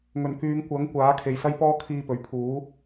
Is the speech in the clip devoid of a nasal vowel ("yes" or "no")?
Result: yes